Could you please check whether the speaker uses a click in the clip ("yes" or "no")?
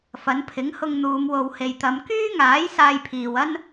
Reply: no